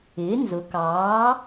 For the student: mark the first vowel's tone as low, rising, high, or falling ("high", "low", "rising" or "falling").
rising